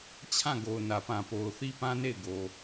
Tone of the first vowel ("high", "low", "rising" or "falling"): falling